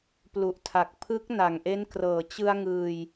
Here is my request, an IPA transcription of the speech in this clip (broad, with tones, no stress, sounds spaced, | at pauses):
p l u˨˩ ʔ tʰ a˨˩ k̚ pʰ ɯ˦˥ k̚ n a˨˩ ŋ ʔ e˦˥ n k r ɤː˨˩ t͡ɕ ɯ˧ a̯ ŋ ɯː˧ j